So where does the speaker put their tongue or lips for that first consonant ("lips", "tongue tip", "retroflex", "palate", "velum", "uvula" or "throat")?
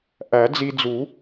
throat